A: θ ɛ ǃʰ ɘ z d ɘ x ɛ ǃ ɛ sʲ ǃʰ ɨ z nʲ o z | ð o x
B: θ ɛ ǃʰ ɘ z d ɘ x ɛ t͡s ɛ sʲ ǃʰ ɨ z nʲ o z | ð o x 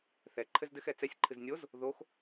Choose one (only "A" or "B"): B